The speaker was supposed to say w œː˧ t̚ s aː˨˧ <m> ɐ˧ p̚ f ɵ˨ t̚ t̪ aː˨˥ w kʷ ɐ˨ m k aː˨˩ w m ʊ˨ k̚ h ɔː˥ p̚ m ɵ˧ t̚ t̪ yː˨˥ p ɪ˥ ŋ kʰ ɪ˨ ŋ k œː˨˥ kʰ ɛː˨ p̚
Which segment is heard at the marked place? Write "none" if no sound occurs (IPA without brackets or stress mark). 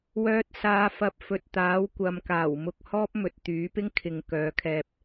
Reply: f